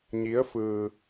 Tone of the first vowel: rising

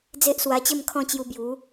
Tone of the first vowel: high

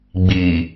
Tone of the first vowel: low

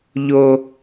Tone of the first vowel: high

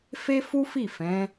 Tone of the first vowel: high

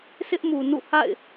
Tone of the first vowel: high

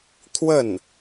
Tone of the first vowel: falling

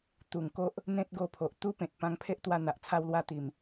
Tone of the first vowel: low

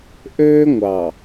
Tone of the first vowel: high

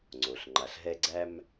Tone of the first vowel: low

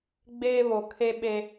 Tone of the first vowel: high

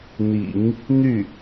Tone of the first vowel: low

